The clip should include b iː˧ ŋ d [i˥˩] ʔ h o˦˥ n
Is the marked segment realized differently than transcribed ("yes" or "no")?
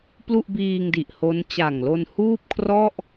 yes